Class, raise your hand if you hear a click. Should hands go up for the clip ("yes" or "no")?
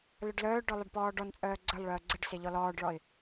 yes